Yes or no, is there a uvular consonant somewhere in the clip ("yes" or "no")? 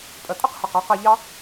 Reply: yes